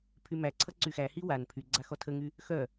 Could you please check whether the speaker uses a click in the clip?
yes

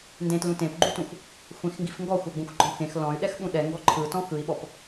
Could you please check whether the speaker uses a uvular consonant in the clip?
no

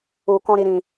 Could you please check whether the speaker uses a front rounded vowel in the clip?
no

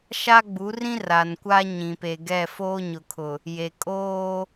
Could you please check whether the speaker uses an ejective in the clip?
yes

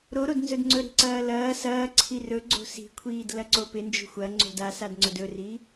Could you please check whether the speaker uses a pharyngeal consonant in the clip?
no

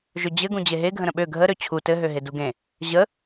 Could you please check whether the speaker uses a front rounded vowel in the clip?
yes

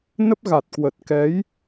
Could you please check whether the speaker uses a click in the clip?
no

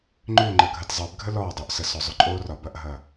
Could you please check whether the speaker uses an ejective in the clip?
yes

